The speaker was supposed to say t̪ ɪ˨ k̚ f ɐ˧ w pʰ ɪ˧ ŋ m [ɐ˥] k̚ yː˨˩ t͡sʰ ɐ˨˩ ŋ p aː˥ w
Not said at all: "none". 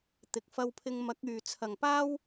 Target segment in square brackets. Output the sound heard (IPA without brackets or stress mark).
ɐ˨˥